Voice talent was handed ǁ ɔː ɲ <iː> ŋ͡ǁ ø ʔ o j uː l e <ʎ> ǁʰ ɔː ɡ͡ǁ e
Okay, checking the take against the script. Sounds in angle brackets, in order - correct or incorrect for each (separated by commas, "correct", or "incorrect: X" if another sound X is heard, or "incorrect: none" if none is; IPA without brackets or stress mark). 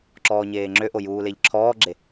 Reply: incorrect: eː, correct